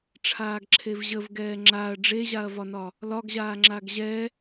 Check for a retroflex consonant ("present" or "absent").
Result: present